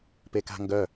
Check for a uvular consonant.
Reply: absent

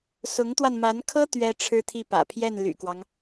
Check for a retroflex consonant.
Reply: present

